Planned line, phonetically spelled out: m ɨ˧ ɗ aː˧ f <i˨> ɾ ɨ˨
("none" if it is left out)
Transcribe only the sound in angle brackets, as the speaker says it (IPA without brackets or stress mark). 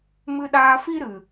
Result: i˦